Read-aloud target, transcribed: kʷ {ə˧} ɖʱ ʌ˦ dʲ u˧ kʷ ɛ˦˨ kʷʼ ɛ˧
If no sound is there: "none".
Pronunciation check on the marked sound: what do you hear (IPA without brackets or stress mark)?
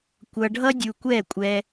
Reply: ʌ˧